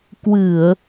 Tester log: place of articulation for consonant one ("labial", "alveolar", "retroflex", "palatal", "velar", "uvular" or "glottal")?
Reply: velar